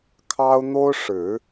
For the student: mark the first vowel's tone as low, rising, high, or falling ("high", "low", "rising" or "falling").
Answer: high